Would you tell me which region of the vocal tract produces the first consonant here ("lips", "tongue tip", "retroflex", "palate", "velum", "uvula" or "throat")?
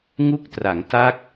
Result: velum